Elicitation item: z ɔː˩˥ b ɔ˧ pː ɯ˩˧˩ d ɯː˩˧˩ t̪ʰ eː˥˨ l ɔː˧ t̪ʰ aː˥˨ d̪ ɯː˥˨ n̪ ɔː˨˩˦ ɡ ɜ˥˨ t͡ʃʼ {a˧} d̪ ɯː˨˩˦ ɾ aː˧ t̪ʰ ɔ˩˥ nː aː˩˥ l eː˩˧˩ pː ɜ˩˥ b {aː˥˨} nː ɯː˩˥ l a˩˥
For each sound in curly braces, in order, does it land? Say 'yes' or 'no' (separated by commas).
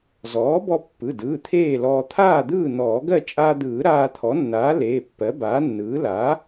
no, no